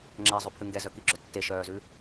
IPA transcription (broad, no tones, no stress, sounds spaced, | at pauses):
ŋ͡ǁ ɛ zˤ ʉ pʰ ʉ ŋ ɡ ɛ z œ k i ɡ͡ǁ œ tː e ʃ œː z ʉ